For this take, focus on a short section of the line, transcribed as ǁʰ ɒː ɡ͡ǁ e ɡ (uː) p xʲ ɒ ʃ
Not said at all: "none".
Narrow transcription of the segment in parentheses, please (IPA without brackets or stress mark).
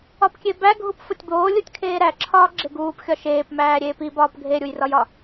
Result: uː